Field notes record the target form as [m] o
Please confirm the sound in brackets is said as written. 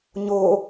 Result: no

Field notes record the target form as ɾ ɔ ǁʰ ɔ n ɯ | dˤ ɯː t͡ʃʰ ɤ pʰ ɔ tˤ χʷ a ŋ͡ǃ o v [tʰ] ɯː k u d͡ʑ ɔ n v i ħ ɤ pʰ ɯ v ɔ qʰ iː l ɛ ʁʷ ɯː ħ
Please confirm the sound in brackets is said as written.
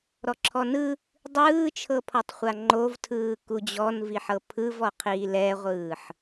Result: yes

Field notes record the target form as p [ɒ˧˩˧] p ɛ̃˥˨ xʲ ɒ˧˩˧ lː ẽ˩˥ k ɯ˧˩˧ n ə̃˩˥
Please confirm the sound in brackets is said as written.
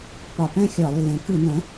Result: yes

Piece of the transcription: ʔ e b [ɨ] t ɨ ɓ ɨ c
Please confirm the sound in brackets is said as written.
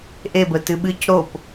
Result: no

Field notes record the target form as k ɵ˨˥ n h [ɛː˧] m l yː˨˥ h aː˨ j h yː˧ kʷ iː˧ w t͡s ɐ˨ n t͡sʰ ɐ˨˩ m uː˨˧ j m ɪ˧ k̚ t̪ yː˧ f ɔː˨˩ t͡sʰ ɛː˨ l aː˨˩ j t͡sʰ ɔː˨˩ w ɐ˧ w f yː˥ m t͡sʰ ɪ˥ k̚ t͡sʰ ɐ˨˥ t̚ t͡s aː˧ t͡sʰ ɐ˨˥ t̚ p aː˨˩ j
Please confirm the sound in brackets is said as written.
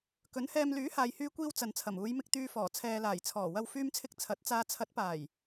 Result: yes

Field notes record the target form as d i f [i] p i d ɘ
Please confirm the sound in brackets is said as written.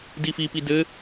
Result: yes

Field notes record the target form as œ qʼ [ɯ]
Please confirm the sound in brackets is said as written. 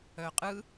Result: yes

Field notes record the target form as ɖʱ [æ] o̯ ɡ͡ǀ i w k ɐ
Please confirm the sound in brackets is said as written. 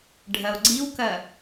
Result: no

